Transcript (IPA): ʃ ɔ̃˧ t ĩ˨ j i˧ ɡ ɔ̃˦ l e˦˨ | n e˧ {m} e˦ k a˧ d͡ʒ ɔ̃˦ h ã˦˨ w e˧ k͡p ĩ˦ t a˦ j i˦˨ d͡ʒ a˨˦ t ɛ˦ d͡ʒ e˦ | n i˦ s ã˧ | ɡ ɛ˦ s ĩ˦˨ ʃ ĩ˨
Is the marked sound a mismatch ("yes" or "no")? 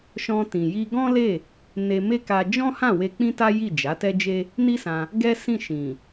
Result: no